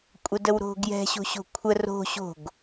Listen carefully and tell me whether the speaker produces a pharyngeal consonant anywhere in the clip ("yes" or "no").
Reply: no